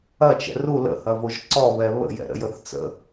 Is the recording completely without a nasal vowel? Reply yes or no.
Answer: yes